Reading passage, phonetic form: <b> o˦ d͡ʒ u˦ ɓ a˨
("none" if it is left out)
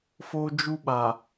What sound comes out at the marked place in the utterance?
f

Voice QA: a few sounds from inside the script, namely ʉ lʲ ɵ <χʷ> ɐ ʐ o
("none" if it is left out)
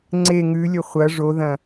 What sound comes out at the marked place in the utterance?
χʷ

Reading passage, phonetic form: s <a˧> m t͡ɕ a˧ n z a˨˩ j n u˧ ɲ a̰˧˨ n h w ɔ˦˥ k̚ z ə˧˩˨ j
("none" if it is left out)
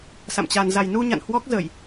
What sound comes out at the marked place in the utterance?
a̰˧˨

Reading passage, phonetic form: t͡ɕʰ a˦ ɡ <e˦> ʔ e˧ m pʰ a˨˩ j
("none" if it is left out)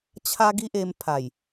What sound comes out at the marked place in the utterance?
i˦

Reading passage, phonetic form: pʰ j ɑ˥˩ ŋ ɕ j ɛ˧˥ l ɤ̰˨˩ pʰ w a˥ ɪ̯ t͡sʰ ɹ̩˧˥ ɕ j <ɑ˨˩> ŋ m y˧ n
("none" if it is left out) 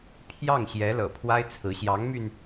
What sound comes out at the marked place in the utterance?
ɑ˧˥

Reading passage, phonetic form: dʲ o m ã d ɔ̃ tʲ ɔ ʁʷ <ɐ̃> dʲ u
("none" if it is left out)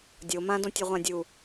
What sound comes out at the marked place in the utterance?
ã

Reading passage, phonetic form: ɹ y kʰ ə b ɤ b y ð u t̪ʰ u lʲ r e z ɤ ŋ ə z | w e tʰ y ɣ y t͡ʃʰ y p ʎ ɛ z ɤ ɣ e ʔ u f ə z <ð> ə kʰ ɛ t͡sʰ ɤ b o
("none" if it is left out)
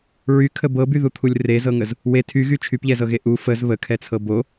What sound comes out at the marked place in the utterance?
β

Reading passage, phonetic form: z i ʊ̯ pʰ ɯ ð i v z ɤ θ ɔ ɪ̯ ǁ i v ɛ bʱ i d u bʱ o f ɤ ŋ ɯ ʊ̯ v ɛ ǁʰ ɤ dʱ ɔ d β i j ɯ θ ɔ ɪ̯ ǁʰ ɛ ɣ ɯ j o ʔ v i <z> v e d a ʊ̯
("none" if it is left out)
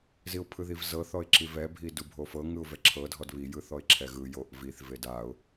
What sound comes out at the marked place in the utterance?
θ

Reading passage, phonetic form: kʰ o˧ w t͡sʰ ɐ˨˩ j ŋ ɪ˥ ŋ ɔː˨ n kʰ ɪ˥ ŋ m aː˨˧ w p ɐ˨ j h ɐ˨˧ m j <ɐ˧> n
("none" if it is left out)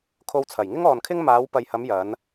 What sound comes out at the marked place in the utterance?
ɐ˨˧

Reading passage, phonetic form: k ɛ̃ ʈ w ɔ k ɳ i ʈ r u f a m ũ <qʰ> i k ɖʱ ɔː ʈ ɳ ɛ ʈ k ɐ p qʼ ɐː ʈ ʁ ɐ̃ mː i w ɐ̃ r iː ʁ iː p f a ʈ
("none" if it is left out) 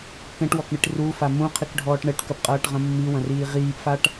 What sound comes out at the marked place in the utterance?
qʰ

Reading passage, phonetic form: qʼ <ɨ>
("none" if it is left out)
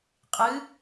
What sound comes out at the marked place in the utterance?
ɨ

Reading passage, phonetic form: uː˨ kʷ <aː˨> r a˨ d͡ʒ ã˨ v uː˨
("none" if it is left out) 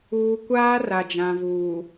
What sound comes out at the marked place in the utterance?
aː˦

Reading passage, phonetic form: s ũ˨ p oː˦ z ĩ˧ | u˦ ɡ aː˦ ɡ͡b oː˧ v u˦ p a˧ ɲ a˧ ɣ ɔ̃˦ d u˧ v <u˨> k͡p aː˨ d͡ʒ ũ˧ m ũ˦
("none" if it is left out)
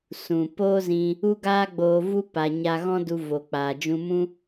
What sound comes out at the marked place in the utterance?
o˨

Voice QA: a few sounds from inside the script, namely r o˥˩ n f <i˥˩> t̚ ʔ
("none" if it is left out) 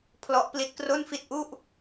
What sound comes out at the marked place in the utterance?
i˥˩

